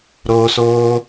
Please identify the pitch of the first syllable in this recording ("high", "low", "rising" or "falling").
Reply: high